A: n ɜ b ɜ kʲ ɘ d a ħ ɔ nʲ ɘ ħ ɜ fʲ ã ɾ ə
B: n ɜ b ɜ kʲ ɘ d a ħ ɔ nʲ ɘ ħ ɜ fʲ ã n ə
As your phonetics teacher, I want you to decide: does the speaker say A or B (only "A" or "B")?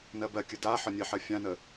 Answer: B